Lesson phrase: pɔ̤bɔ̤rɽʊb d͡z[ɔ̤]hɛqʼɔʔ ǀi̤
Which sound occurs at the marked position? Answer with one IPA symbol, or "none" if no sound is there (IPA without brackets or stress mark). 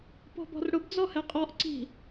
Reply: ɔ